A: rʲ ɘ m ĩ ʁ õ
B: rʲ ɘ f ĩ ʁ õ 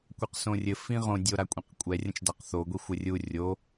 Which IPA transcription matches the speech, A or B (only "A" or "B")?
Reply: B